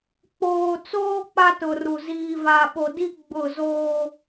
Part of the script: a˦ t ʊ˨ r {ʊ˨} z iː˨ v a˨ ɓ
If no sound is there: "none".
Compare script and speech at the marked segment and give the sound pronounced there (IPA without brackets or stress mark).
u˨